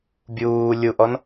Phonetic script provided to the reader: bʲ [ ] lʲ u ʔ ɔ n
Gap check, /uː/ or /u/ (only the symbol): uː